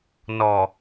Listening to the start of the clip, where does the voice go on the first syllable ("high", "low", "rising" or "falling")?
low